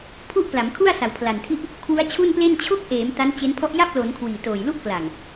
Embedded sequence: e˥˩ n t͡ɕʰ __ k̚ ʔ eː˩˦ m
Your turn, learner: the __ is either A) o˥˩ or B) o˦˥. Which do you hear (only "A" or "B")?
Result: B